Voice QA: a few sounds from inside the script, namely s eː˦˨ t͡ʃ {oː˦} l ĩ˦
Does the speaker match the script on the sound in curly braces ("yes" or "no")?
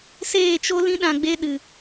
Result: no